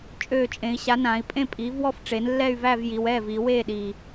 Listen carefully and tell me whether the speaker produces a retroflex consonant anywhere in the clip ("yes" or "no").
yes